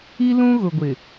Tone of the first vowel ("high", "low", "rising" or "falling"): high